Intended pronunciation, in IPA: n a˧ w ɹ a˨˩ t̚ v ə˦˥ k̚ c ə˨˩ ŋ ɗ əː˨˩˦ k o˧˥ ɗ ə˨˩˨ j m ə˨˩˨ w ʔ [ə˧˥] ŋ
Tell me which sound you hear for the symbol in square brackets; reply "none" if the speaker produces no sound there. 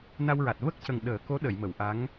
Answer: a˧˥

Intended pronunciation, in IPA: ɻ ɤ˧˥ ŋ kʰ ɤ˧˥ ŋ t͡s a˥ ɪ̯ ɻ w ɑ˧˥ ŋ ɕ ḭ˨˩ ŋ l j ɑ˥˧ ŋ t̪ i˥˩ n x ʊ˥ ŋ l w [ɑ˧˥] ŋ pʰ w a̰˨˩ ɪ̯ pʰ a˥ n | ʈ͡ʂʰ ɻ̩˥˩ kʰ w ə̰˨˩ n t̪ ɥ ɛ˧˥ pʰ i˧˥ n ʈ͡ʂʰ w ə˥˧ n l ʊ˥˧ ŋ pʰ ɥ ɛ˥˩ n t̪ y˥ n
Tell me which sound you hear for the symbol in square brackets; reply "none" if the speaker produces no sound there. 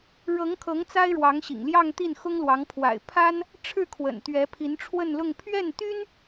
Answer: ɑ˧˥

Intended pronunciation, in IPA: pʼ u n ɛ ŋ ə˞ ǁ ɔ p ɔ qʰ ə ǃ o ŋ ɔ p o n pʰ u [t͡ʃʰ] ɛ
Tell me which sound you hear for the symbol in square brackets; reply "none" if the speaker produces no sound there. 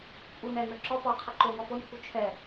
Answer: t͡ʃʰ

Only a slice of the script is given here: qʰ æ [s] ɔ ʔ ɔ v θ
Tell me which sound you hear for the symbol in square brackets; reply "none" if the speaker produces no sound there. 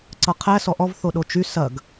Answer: s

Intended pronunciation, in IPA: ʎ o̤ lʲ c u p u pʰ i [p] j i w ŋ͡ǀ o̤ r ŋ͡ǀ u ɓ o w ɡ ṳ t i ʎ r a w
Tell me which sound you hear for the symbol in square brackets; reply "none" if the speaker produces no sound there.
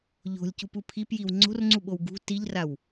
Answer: p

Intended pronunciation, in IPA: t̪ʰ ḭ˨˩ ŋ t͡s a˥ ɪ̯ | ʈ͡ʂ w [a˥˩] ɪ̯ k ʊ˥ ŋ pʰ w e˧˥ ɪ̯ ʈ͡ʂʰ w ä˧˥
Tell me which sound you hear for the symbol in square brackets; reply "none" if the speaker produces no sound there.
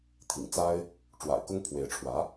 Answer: a̰˨˩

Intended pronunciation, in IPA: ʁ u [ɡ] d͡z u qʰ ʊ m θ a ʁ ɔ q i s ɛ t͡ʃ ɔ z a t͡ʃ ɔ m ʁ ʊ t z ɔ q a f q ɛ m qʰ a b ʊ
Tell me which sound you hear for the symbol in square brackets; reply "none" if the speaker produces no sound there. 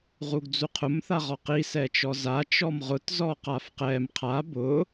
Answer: ɡ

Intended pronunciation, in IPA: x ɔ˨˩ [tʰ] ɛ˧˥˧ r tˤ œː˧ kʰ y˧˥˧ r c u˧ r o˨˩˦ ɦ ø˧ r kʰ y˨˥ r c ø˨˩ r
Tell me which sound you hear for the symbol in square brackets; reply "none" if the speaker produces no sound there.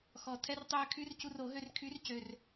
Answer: tʰ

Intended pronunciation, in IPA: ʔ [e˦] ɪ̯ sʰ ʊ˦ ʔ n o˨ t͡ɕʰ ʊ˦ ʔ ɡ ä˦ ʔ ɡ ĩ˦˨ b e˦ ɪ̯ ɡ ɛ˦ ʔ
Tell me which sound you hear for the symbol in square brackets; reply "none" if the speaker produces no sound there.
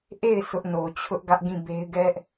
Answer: e˦˨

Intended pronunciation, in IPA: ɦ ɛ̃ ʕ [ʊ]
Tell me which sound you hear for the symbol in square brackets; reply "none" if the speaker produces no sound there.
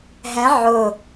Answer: ʊ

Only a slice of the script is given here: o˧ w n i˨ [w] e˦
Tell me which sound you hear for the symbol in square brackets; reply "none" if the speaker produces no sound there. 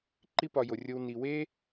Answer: w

